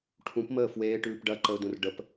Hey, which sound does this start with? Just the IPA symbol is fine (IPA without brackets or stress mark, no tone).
ʈʰ